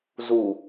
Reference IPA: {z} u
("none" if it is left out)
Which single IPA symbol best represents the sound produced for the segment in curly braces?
z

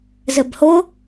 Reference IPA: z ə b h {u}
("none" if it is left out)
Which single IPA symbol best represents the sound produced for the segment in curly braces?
o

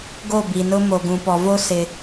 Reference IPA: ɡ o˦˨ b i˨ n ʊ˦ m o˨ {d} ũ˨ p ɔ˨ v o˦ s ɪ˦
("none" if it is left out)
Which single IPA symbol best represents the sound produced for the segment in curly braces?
ɡ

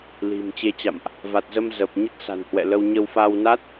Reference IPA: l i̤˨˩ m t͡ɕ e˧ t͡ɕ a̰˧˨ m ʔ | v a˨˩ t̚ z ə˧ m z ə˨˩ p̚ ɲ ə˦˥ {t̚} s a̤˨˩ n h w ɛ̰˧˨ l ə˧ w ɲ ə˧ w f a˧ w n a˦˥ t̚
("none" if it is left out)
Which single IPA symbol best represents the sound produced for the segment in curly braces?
t̚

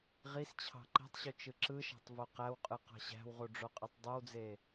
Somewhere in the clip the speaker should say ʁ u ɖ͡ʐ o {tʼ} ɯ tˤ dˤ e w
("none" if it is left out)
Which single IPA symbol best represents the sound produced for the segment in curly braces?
qʼ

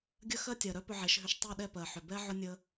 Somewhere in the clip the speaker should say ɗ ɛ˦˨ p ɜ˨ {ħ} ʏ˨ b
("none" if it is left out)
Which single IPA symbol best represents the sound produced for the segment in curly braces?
ħ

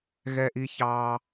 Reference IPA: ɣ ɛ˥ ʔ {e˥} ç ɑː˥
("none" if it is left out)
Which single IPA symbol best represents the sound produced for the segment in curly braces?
i˥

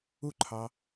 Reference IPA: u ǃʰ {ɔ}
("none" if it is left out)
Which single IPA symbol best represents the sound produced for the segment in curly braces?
ɑ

